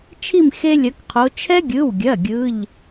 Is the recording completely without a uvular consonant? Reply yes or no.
no